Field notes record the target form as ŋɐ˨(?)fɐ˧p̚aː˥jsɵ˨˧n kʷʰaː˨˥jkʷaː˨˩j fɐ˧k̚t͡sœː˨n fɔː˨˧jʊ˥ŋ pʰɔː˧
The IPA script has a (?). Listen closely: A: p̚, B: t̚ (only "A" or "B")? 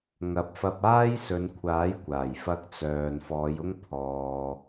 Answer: A